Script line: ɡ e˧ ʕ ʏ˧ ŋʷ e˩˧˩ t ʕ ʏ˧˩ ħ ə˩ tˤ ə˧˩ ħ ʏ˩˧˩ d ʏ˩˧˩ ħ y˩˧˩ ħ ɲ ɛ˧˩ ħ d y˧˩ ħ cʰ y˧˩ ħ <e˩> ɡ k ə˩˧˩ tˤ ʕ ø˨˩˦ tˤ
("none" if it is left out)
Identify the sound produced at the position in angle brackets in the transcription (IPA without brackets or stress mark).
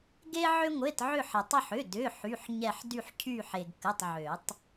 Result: e˩